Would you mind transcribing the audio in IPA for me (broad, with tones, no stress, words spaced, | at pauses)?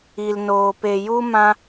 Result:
i˧lnoː˧ pe˧ju˦ mã˦